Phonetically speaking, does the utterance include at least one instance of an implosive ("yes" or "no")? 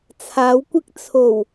no